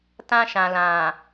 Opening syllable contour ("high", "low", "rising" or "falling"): high